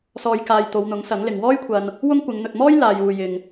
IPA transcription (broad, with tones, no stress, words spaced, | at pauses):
sɔː˨jkaː˨j t̪o˨˧wn̪ʊ˨˥ŋsɐ˨˥ŋlɪ˨ŋ wɔː˥jkʷʰɐ˧n | wʊ˥ŋkʷɪ˨˧ŋ n̪ɵ˨t̚mɔː˥j laː˨juː˨ jɪ˨ŋ